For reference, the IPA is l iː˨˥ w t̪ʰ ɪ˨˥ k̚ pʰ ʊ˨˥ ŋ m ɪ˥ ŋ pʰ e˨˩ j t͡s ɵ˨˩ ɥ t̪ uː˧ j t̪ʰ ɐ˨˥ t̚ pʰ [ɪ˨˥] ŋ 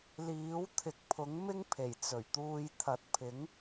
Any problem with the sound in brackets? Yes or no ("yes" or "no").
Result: no